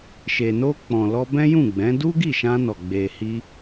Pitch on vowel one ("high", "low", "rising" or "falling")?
low